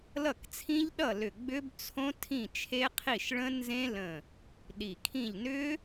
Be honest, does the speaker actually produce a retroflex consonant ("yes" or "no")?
yes